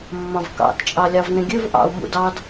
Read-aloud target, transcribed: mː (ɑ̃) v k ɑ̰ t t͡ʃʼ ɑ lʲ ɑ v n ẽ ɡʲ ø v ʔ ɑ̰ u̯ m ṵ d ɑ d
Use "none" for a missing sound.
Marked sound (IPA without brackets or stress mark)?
ɑ̃